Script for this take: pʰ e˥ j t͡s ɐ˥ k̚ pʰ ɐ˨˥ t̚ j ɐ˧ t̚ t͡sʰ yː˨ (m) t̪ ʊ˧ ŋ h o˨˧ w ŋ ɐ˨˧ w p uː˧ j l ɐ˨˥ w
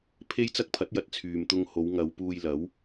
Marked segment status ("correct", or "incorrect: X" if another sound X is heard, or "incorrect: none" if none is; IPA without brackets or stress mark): correct